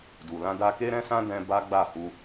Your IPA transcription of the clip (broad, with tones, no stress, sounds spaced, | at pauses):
d u˨ l ã˧ d a˧ k e˦ ɾ ɛ̃˧ s ã˧ d ɛ̃˧ b a˦ ɡ͡b a˦˨ h u˧